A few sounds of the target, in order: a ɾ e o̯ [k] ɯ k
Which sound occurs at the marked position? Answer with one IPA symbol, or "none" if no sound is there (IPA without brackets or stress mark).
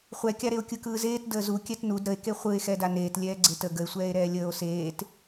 kʲ